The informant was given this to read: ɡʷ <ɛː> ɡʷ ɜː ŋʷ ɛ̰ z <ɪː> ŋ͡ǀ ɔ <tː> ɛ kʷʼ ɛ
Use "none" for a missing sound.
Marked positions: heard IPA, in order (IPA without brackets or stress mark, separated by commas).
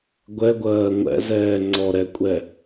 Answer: ɛ, ɛː, ɾ